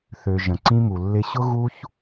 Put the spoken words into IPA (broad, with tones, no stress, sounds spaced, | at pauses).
θ ø˨ ʒ ə̃˨ ǀ ĩ˦ m u˨ lː ɪ˧ ɕ ʊ˦ ɣ u˦ ç